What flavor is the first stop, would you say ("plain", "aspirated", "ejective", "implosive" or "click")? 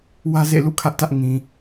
aspirated